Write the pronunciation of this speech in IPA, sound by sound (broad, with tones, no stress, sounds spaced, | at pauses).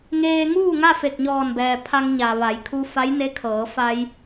ŋ eː˧ ŋ uː˥˨ ŋ a˥˨ f e˧˩ k̚ ɲ ɔː˧˩ n b ɛː˩ pʰ a˧ ŋ ɲ a˩ ʋ a˩˧ j kʰ u˧ f a˧˥ j n e˧˥ kʰ ɤː˩˧ f a˧ j